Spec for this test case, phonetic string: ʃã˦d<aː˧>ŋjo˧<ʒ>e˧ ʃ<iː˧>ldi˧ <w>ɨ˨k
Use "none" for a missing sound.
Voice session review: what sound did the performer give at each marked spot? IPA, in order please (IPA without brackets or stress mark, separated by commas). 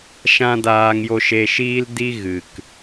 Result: aː˧, ʃ, iː˧, ɣ